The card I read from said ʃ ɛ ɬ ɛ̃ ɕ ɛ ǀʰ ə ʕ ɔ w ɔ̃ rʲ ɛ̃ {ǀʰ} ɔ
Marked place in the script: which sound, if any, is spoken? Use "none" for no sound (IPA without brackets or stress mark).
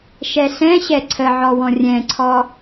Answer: ǀʰ